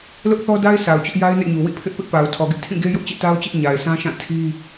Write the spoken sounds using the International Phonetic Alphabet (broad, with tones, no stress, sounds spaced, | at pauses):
l ʊ˦ ʔ θ ɔ˦ d a˦ ɪ̯ s a˨ ʊ̯ t͡ɕ ʊ˦ ʔ j a˦ ɪ̯ n ɛ̰˦˨ ɲ u˨ w ḭ˦˨ pʰ ɪ˦ ʔ p ɪ˦ ʔ p a˨ ʊ̯ tʰ ɔ˨ ɡ ɪ˦ ʔ tʰ ĩ˦˨ ɡ e˦ j ʊ˦ ʔ t͡ɕ ḛ˦˨ t a˦ ʊ̯ t͡ɕ ɪ˦ ʔ ɲ a˨ ɪ̯ sʰ ã˦ ʃ ã˦˨ tʰ i˦